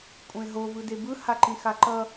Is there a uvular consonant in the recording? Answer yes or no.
no